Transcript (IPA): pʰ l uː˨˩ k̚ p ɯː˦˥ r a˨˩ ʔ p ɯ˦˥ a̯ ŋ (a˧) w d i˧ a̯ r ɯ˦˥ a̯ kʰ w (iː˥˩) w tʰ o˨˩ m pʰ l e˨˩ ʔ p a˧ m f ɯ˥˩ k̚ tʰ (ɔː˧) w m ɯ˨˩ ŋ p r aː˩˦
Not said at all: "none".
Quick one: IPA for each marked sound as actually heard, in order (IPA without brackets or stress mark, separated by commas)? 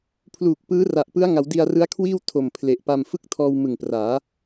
a˩˦, iː˥˩, ɔː˧